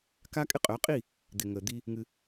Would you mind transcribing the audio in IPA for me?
k a˦ kʼ ɪ˦ qʼ œ˨˦ qʼ i˦˨ | d̪ ɪ˨ ŋ ə˨ d̪ i˦ | ŋ ɨ˦

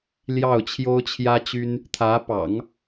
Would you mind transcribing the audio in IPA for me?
l j ɑ˥˩ ʊ̯ t͡ɕʰ j o˥ ʊ̯ t͡ɕʰ j ä˥ t͡ɕ y˥ n | t̪ʰ ä˧˥ p ɑ̰˨˩˦ ŋ

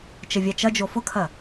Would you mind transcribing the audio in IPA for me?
t͡ʃ ə vʲ a t͡ʃ ɐ d͡ʒ o f ʊ kʰ ɐ

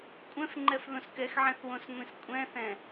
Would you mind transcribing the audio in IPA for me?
kʷʼ ɛ̃ f ŋ͡ǃ ɛ f ð õ s k ɛ x ʕ ɛ̃ θ w õ s ŋʷ ĩ s kʷʼ ɛ̃ θ ɛ̃

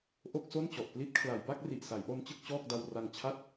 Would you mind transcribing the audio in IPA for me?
ʔ o˥˩ k̚ s o˥˩ n t͡ɕ ɔ˨˩ ʔ p l i˦˥ t̚ kʰ l a˩˦ j b a˥˩ k̚ r i˨˩ ʔ s a˩˦ j ʔ o˧ n t͡ɕ ɯ˥˩ k̚ t͡ɕ ɔː˥˩ k̚ d a˧ w r a˧ ŋ t͡ɕʰ a˥˩ t̚

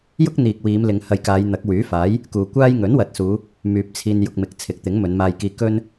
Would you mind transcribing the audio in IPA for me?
j ʊ˥ k̚ n̪ iː˨ k̚ w iː˨˧ m l ɪ˨˧ ŋ h ɐ˧ j k aː˨˧ j n̪ ɐ˨˥ k̚ w yː˨˥ f aː˨˥ j | k uː˨ kʷ aː˥ j ŋ ɵ˨˥ n w ɐ˨ t̚ s uː˨˧ | m yː˨ p̚ t͡sʰ iː˧ n j ʊ˧ k̚ m ɪ˨ k̚ t͡sʰ ɪ˨˥ k̚ t̪ ɪ˨˥ ŋ m ɵ˨˧ n m aː˧ j k iː˧ k ɵ˥ n

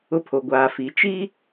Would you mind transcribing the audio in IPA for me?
ʊ˦ pʰ o˨ ɡʷ aː˨ f i˨˦ t͡ʃ i˦

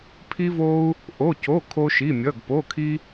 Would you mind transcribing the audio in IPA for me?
pʰ i˥ v o˥ u̯ | ʔ o˧˥˧ c o˧˥˧ kʰ o˥ ʃ i˧˥˧ mʲ ʌ˧˥˧ ɡ p o˧˥˧ kʰ i˥

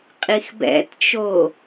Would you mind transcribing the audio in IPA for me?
qʼ i x b ɛ̰ t t͡ʃ o

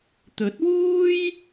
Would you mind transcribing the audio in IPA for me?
t̪ ɵ˨˥ t̚ w uː˥ j

